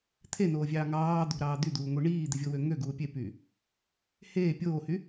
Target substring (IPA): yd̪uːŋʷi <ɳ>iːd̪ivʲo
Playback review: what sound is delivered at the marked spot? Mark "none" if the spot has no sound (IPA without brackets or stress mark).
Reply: ɳ